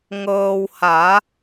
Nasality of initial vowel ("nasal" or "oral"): oral